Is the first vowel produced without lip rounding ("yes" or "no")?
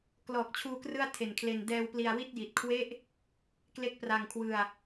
no